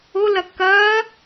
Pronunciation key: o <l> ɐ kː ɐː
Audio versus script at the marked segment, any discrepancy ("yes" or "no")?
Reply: no